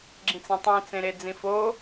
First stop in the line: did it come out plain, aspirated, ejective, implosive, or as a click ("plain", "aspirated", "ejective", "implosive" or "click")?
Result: click